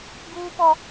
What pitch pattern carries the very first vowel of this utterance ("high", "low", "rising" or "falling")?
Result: high